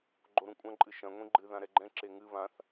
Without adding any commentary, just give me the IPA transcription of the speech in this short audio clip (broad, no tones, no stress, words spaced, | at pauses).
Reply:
ɡ͡ǃoɾũkʷʼɐ̃ ǃʼɨʃɐ̃ ŋʷĩɡ͡ǃɨ ðãɾɛɡ͡ǃɛ̃ ǁeŋɨ βãθ